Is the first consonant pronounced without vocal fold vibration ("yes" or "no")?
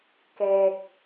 yes